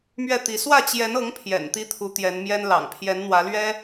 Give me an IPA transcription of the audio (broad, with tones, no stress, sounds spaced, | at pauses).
m ɥ ɛ˥˩ t̪ i˧˥ s w ä˥˩ t͡ɕ j ɛ˧˥ n ɤ˧˥ ŋ pʰ j ɛ̰˨˩ n t̪ i˥ t̪ʰ u˧˥ t̪ j ɛ˧˥ n m j ɛ˥ n l ɑ̰˨˩ ŋ pʰ j ɛ˧˥ n n̪ w ä˧˥ l ɥ ɛ˥